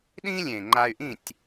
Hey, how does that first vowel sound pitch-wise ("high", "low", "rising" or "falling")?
high